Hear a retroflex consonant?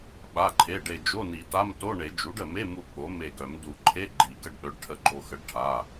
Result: yes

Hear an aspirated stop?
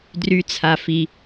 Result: yes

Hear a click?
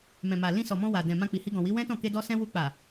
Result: no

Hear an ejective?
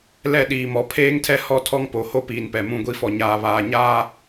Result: no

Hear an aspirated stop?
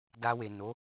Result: no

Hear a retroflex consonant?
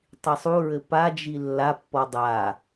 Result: no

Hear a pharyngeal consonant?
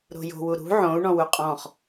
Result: yes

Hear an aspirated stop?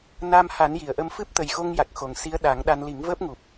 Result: no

